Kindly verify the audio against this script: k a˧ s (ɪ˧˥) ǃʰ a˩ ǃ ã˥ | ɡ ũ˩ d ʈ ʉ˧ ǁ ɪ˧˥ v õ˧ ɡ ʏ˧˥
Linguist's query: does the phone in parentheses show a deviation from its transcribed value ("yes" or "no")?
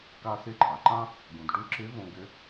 no